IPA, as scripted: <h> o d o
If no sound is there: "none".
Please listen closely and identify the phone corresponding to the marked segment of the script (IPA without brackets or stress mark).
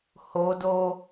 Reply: h